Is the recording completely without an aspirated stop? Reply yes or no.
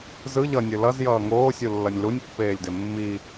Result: yes